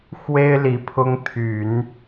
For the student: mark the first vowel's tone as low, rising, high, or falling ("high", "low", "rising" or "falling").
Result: high